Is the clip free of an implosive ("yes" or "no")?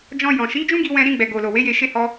yes